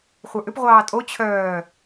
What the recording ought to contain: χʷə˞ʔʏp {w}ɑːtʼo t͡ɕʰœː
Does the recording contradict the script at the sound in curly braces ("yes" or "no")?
yes